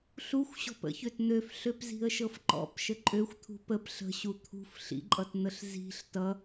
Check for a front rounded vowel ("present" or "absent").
present